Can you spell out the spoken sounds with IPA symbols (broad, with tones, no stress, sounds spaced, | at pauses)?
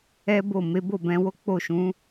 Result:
ɛ˦ b o˦˨ m e˨˦ b o˦˨ b ɛ̃˧ w o˦ k͡p o˦˨ ʃ ũ˨˦